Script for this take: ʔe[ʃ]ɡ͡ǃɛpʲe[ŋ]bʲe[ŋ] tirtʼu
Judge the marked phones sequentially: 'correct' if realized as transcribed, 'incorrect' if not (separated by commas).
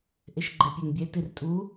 correct, correct, incorrect